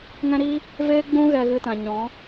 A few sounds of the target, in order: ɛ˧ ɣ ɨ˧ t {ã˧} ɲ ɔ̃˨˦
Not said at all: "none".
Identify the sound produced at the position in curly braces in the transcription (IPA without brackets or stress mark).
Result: ã˨